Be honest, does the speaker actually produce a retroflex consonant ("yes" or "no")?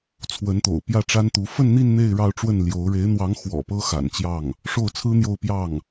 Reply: yes